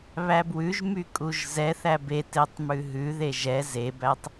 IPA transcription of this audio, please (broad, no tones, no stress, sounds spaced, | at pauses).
β æ b w ʉ ʒ m y kʼ u ʒ z ɛ θ æ b e t e tˤ m ʉ ɦ ʉ ð e ʒ ɛ z e b æ tˤ